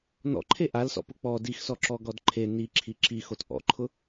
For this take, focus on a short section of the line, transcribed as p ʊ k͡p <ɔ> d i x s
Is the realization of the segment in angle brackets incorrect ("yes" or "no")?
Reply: no